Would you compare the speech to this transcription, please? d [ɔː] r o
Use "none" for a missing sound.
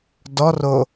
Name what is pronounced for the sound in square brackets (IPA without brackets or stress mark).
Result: ɔ